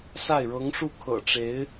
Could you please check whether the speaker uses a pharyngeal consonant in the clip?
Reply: no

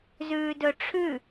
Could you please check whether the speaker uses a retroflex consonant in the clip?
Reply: yes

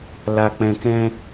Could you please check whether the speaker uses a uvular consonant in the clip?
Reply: no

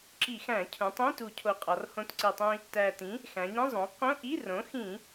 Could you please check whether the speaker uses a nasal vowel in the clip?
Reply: yes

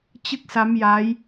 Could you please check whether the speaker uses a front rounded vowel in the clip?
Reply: no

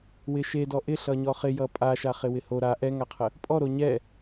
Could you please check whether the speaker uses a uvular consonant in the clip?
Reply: yes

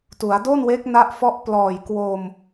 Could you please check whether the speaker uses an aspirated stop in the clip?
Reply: no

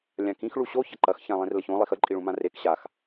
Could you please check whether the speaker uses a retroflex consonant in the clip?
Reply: yes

